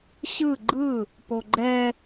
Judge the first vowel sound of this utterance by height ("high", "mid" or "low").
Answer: high